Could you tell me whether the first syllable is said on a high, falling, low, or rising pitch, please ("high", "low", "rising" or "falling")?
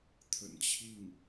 low